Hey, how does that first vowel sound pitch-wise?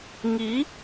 rising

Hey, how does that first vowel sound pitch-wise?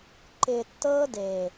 low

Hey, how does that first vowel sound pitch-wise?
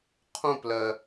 falling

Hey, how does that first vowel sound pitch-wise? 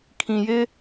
low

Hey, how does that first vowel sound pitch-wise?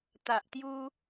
low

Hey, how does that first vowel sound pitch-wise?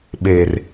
low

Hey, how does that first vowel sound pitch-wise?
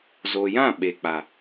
low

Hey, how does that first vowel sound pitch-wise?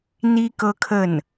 high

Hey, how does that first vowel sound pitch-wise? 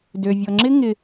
low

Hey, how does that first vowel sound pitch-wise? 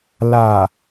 low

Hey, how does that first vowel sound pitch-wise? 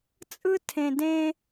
high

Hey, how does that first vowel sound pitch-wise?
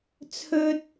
high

